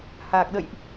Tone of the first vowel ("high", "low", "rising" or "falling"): low